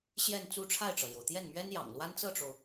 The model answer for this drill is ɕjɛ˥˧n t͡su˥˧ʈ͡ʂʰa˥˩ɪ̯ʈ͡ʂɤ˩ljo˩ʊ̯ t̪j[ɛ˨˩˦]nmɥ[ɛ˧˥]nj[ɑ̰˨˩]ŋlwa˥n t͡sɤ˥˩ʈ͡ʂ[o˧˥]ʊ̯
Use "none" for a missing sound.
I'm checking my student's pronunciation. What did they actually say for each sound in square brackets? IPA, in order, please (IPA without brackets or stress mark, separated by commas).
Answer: ɛ˥˩, ɛ˥, ɑ̰˨˩, o˩